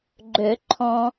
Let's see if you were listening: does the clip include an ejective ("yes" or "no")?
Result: no